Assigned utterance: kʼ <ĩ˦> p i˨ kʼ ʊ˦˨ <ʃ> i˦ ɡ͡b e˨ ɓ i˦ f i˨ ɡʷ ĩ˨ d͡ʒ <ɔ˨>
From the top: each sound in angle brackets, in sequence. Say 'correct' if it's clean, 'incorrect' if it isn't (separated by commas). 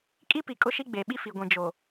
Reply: incorrect, correct, incorrect